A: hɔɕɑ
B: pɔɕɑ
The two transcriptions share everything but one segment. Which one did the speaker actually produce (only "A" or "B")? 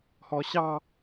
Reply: A